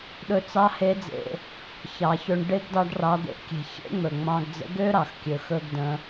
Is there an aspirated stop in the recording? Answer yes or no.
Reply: no